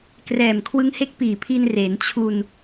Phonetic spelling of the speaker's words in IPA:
k r ɛː˨˩ m kʰ w ɯ˦˥ ŋ h e˦˥ k̚ p iː˨˩ pʰ i˧ n r eː˩˦ n t͡ɕʰ u˧ n

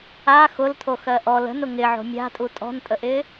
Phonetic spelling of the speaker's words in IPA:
a x ʊ l tʰ o x ɜ ʔ ɔ l ə̤ n ʊ ŋ ɪ ʕ o̤ mʲ a̤ tʼ u tʼ ɔ̤ n tʼ ə ʔ ɪː

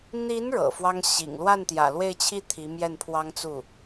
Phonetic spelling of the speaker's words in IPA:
n̪ i˧˥ n ɻ ɤ̰˨˩ f w ɑ˥ ŋ ɕ ḭ˨˩ ŋ l w a˥˩ n t̪ j ä̰˨˩ l w e˥˧ ɪ̯ t͡ɕʰ i˥˩ t̪ʰ i˧˥ m j ɛ˥˩ n pʰ w ɑ˥ ŋ t͡s u˥˩

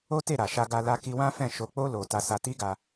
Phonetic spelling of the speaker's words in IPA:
o˦ t e˦˨ ɾ a˨ ʃ a˧ ɡ a˧ l a˦ k i˦ w ã˦ f ɛ̃˦˨ ʃ o˧ k͡p o˦ l o˧ t a˧ s a˧ t i˦ ɡ a˧

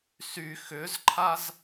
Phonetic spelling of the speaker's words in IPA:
s y x ʏ z ǃʰ a z

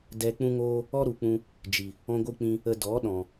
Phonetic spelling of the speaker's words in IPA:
d ɛ˧ k͡p ũ˦ ŋ oː˦ | ɔ˦ ɾ u˨ k͡p ũ˧ | d͡ʒ i˨ | ɔ̃˦ ɡʷ ɨ˦ k͡p ĩ˦ | ə˧ d ɔ˨˦ ɗ ɔ̃˨

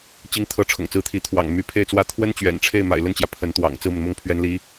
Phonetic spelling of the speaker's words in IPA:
t͡ɕ i˧˥ ŋ t̪ʰ ɤ˧˥ ʈ͡ʂʰ ʊ̰˨˩ ŋ t͡s ɹ̩˧˥ t̪ʰ i˧˥ t̪ʰ w ɑ̰˨˩ ŋ m y˧˥ pʰ e˥˩ ɪ̯ t͡s w ä˥ t̪ʰ w ə˥ n t͡ɕ ɥ ɛ̰˨˩ n ʈ͡ʂʰ e˥˩ ɪ̯ m a̰˨˩ ɪ̯ l ə˥˩ n t͡ɕ j ä˩ pʰ ə˧˥ n t̪ w ɑ̰˨˩ ŋ t͡s ɹ̩˥˩ m ə˩ n m ʊ˥˩ ŋ pʰ ɥ ɛ˧˥ n l i˧˥

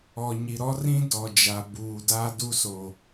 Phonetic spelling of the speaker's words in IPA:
ɔ˨ ɲ i˨ ɾ ɔ˦ r ĩ˦ d ɔ˨ d͡ʒ a˨ b uː˨ d aː˦ d u˦ s o˨

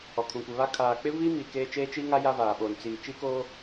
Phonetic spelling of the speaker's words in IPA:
ɔ˨ kʰ ũ˨ kʷ ɪ˨ β a˦ kʰ aː˨ k͡p ɪ˦ v iː˦ m iː˨ k eː˦ t͡ʃ eː˦ t͡ʃ iː˦ ŋ a˦ j a˦ v aː˨ ɓ oː˨ n t͡s iː˨ t͡ʃ iː˦ k oː˦

